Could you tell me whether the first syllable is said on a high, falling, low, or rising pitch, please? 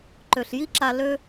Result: low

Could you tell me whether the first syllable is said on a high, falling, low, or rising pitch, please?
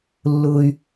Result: high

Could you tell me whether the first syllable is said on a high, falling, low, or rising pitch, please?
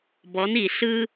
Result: rising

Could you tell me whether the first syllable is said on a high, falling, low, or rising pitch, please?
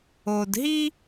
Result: low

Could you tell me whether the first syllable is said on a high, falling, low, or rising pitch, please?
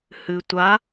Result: low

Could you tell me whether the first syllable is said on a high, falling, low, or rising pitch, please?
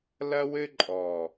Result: high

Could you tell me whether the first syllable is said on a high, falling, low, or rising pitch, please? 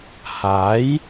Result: rising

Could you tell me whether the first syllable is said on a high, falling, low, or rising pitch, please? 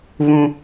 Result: high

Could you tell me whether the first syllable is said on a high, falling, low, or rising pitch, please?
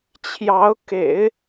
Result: rising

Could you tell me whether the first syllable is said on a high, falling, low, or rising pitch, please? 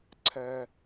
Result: high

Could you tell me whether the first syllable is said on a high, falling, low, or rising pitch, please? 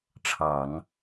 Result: low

